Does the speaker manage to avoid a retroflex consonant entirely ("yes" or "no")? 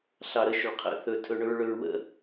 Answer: no